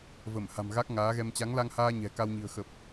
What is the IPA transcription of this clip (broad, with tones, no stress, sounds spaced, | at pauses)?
v ə˧˩ m h a̤˨˩ m ɣ a˦˥ k̚ ŋ aː˨˦ ɣ ɛ˧ m t͡ɕ a˨˦ ŋ l a˧ ŋ h aː˧ ɲ ɛ̤˨˩ k a˧ w ɲ i̤˨˩ ə̯ x ə˨˩ p̚